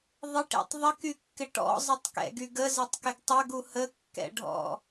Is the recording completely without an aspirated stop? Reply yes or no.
yes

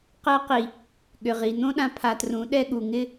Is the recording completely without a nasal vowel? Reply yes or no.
no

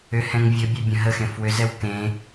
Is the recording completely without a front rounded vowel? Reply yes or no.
no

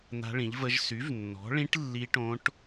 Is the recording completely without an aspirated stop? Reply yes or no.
yes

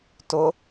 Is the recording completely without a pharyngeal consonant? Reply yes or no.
yes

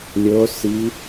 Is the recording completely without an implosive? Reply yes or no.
yes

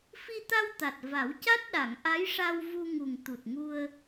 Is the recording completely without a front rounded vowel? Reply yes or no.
yes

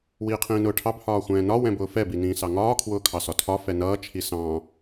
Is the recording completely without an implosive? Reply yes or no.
yes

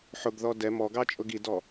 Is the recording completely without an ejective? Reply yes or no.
no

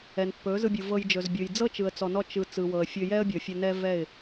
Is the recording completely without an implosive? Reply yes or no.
yes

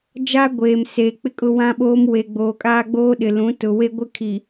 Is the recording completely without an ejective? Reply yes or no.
no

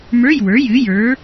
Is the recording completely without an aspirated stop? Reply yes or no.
yes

